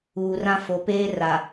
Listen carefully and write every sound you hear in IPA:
uː˨ r ã˦ f o˨ p eː˦ r a˨

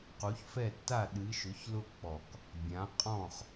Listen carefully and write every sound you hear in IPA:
q u˨˦ ç f ɛ˦˨ tː a˦˨ ɗ ɨ˨˦ ʃ ʊ˨˦ ç l ʊ˦˨ k͡p ɔ˨˩˦ k | bʲ ã˨˦ qʼ ɔ̃˦˨ χ

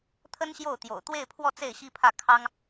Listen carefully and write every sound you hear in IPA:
t̪ʰ ə˥ n ɕ j o˥˩ ʊ̯ t̪ j o̰˨˩ ʊ̯ t̪ w e˥˧ ɪ̯ pʰ w ɔ˥˧ t͡s e˥˩ ɪ̯ ɕ i˥ pʰ ä˥˩ kʰ ɑ˥ ŋ

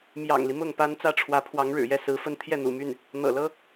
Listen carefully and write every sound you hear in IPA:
m j ɑ̰˨˩ ŋ l i˦ m ʊ˥˩ ŋ p a˥ n t͡s ä˥˩ ʈ͡ʂʰ w ä˧˥ pʰ w ɑ˧˥ ŋ ɻ ɻ̩˨˩ j ɛ˥˩ s ɹ̩˧˥ f ə˥ n t̪ʰ j ɛ˥˩ n̪ ṵ˨˩ m y˥˩ n | n̪ ɤ̰˨˩ l ɤ˥

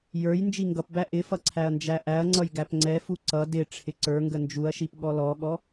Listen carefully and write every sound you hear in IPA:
j ə˞ j n d͡ʒ i ŋ ɡ ʌ p b æ ʔ ɪ f ʌ ǀʰ æ ɐ̯ n d͡ʒ æ ʔ æ ɐ̯ ŋ͡ǀ ʌ j ɡ æ p ŋ͡ǀ ɛ f u ǀ ʌ d ɪ ʈ͡ʂʰ ɪ ǀ ə˞ ŋ ɡ ə n d͡ʒ u ɐ̯ ʃ i p ɠ ɔ l ɔ ɠ ɔ

